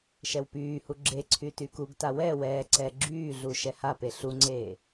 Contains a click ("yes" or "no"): yes